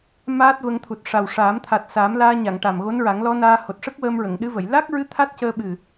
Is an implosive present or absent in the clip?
present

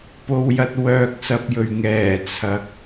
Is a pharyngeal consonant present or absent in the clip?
absent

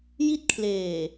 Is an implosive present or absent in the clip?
absent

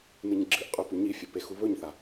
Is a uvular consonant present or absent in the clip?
present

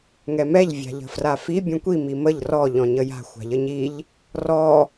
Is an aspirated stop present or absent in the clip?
absent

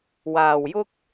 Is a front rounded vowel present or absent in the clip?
absent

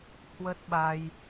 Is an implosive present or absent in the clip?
present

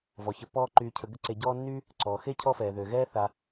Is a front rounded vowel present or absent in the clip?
present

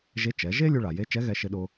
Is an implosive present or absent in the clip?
present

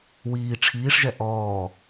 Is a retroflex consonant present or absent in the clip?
present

